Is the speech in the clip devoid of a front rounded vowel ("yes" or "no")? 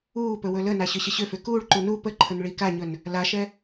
no